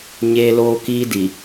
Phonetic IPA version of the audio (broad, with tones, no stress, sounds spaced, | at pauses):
ɲ eː˦ l oː˦ k iː˦ d i˨